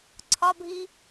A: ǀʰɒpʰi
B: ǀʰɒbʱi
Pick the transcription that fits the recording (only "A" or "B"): B